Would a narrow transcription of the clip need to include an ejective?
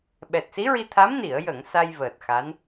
no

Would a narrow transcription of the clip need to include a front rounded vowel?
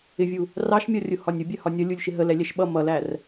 no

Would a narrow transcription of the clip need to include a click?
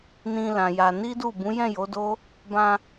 no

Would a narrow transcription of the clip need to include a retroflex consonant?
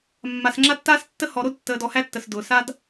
no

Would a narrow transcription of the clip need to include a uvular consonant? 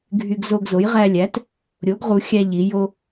yes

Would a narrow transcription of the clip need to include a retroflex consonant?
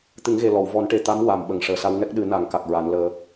yes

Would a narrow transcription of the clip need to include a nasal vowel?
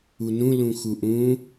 yes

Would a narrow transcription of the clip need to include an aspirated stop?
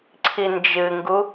yes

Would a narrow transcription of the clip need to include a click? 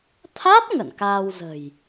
no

